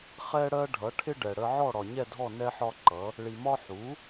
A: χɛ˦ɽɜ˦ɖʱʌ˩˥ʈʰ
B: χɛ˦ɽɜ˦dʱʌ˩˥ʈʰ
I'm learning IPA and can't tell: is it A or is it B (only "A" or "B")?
A